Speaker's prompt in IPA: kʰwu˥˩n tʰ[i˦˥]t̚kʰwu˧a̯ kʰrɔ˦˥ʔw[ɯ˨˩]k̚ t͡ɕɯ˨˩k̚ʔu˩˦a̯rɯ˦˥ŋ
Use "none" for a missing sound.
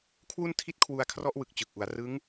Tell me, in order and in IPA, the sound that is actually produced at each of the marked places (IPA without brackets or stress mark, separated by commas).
i˦˥, ɯ˨˩